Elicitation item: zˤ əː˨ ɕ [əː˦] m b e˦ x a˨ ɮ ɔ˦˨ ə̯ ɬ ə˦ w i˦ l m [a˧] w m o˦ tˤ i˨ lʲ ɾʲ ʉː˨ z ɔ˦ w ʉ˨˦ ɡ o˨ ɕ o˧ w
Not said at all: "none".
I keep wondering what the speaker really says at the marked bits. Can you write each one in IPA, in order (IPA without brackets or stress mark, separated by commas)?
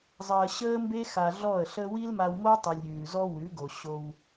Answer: əː˦, a˧